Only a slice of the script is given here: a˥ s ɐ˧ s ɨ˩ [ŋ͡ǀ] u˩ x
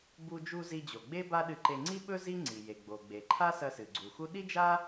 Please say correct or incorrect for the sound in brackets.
incorrect